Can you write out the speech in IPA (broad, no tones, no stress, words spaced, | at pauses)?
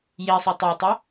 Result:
je sˤɯtˤɤtˤo